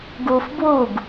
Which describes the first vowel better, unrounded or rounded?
rounded